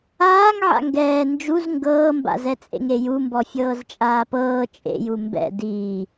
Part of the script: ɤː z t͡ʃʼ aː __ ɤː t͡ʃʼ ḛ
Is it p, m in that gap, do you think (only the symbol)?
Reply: p